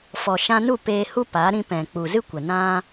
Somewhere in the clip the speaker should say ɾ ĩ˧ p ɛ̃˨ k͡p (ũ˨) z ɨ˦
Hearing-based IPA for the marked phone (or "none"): u˨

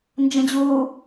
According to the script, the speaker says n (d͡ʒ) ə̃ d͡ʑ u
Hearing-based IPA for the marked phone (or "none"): d͡ʒ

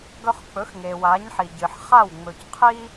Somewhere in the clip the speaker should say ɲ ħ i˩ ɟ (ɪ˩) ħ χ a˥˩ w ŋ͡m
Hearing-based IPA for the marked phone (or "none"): ɨ˩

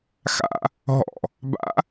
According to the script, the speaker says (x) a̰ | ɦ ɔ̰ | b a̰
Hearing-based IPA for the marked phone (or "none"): x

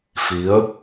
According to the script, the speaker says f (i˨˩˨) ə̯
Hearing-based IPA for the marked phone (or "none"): i˧˥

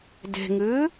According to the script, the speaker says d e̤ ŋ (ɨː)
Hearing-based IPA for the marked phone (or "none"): ɨː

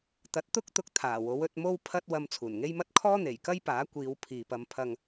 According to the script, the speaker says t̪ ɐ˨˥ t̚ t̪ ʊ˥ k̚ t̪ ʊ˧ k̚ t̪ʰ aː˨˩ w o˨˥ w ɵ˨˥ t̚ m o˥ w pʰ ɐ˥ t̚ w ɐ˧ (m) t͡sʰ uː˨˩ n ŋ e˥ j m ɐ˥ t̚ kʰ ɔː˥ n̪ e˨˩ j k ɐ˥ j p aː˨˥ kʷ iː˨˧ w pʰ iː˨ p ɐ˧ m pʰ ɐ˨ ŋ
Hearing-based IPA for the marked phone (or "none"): m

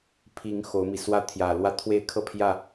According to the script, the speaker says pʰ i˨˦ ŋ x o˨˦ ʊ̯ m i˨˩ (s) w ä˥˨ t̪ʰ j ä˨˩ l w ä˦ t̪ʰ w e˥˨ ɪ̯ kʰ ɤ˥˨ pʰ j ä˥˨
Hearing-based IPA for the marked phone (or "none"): s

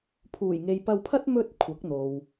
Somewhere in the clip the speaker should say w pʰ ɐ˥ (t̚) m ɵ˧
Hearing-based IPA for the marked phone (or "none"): t̚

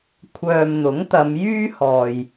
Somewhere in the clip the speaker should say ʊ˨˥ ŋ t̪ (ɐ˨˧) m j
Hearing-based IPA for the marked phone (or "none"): ɐ˨˧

